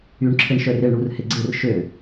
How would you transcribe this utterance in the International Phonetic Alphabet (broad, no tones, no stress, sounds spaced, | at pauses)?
y ɳ ǁʰ ɪ ɳ ʃ œ r ɪ ɳ ɽ u r h ɪ ɡ͡ǀ ɪ r ʃ ø